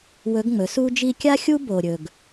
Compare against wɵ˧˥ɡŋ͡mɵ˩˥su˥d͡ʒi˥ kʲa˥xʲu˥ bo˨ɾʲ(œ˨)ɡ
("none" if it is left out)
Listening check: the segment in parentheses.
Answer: ɵ˨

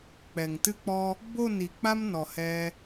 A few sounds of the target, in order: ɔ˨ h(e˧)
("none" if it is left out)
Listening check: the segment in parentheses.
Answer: ɛ˧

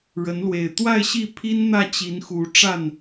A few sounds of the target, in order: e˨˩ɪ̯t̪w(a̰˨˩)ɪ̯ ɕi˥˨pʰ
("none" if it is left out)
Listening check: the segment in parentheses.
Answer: a˥˨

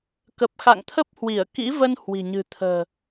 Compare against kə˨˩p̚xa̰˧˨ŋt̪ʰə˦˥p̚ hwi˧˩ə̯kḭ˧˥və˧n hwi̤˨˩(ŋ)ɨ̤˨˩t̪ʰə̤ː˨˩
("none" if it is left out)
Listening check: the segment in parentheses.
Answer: ɲ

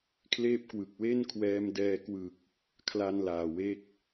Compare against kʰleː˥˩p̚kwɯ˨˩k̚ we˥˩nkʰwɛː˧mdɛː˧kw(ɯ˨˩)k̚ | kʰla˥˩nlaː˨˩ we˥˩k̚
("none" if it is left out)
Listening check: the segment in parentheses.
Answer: ɯ˨˩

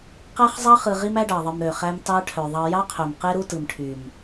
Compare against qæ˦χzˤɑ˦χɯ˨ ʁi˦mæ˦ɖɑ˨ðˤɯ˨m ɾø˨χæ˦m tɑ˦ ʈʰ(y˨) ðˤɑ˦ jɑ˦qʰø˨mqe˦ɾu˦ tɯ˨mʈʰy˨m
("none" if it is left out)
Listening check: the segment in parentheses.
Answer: ø˨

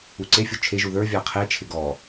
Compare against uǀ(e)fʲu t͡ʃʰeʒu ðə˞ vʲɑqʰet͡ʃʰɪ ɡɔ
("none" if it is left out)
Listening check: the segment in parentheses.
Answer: e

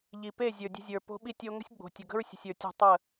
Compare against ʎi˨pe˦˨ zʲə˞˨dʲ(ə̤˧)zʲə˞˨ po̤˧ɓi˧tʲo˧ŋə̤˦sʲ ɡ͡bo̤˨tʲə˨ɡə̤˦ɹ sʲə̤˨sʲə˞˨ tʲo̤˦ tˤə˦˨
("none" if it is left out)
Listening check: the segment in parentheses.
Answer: ə̤˧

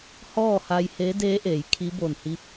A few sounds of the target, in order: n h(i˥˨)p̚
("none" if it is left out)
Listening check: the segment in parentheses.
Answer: i˧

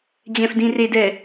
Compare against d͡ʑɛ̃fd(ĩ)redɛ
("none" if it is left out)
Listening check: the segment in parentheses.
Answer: ĩ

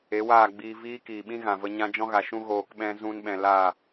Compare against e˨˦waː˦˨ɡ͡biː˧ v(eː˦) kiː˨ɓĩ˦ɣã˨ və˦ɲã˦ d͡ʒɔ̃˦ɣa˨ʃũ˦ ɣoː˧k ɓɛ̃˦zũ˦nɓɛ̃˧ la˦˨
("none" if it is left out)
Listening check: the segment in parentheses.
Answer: iː˦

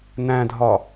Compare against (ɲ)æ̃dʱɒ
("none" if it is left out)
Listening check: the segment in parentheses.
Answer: n̪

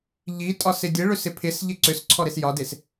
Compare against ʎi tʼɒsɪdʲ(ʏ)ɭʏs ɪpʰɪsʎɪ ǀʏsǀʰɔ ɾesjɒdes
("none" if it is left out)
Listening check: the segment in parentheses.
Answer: ə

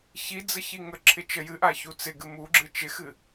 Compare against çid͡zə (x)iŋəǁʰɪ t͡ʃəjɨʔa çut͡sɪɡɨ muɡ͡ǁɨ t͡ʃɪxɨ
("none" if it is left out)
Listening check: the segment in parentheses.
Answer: ç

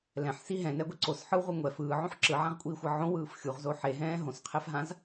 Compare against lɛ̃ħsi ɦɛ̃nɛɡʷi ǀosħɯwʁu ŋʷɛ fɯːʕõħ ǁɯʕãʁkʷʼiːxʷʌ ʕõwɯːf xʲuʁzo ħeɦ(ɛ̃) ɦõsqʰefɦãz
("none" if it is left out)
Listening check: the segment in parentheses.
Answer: ɛ̃ː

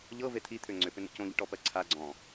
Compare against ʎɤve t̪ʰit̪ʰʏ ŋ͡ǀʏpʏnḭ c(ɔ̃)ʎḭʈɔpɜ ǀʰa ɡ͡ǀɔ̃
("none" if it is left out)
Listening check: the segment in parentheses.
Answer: õ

